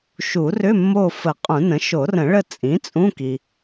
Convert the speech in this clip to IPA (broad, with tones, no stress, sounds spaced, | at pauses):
ʃ u˨˩˦ r ʏ˧˥˧ mː o˦˨ f ə˨˩˦ qʼ ũ˨˩˦ n ə̃˩˥ ʃ o˨˩˦ r ə̃˨˩˦ ɭ ə˦˨ t͡sʼ ĩ˩˥ t͡sʼ ũ˧˥˧ k i˨